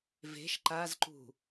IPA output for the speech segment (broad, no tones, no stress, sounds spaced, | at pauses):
v e̤ ʃ ǃ a z ǃ ṳ